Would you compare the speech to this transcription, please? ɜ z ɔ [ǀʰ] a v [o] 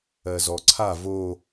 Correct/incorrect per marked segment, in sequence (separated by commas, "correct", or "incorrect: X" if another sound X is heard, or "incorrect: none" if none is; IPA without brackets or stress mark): correct, correct